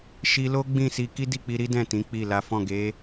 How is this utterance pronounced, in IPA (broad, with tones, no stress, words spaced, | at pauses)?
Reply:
ʃi˧lo˦ ɡ͡bĩ˦˨si˧ ki˦di˦˨k͡pi˧ɾi˦ dɛ̃˦˨tĩ˨˦ k͡pi˦˨ la˨˦fɔ̃˦˨ ɡe˨˦